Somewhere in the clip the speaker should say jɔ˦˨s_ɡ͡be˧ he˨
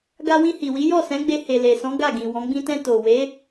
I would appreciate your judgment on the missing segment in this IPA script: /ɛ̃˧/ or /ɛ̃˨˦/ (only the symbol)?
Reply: ɛ̃˨˦